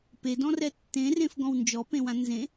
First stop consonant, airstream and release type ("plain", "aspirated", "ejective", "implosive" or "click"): plain